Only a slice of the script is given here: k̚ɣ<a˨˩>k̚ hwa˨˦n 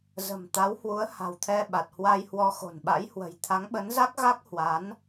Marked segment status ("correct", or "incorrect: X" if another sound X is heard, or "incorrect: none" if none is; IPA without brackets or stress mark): incorrect: a˦˥